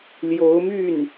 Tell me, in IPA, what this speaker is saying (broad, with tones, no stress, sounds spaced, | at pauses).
l j o˧˥ ʊ̯ m y˥˩ n